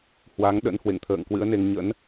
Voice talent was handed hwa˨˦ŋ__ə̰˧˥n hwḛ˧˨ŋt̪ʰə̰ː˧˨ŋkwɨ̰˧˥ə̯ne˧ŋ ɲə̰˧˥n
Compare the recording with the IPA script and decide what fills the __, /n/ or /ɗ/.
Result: ɗ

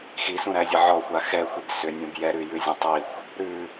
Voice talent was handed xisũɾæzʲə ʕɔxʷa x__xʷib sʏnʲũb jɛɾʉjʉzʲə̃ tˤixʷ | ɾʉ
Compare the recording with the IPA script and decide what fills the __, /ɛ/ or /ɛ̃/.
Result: ɛ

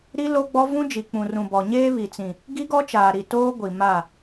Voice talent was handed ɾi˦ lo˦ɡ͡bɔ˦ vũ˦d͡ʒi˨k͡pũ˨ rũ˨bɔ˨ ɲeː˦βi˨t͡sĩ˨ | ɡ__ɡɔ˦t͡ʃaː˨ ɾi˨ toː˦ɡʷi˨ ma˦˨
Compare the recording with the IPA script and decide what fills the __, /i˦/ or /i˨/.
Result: i˦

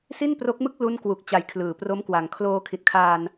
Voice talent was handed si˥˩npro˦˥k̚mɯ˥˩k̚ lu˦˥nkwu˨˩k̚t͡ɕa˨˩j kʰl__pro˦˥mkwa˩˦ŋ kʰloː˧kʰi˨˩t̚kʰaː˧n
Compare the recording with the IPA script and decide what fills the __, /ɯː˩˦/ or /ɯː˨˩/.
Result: ɯː˩˦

